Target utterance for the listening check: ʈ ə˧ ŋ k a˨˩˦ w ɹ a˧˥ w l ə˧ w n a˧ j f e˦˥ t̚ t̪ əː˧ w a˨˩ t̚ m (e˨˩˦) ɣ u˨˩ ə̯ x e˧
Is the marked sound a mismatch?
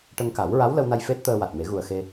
no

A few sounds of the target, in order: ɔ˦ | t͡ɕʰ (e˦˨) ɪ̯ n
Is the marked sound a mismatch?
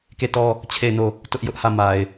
no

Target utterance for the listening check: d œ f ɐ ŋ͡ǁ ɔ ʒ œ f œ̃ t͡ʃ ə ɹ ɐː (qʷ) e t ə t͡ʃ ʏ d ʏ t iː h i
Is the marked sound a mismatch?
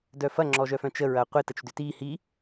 no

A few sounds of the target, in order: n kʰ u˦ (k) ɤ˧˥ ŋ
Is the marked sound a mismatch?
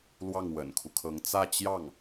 yes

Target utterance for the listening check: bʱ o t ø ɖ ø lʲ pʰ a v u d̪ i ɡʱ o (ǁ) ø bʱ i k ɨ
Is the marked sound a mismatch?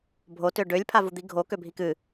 yes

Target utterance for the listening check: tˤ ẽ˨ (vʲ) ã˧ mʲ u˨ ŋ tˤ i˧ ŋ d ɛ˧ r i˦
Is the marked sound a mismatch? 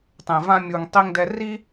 yes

